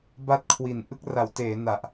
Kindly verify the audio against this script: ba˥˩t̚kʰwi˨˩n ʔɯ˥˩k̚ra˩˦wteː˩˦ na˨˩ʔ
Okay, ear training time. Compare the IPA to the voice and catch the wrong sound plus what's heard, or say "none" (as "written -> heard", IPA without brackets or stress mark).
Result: none